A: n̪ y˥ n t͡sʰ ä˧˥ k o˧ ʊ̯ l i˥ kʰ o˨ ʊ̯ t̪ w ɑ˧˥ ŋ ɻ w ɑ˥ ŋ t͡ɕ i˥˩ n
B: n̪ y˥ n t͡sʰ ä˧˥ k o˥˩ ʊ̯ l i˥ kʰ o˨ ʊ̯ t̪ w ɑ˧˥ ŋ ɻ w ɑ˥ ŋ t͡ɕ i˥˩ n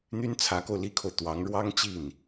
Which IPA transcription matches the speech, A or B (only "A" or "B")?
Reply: A